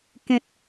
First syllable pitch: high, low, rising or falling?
high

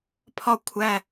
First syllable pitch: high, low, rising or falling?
falling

